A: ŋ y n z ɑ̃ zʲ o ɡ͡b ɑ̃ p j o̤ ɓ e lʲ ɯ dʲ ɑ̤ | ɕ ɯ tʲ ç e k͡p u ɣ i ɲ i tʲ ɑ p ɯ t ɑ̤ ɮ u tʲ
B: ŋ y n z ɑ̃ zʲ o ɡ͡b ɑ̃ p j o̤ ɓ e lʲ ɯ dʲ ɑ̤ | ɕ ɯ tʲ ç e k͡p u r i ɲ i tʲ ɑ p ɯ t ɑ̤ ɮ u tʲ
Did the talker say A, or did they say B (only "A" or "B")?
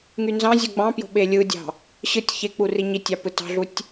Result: B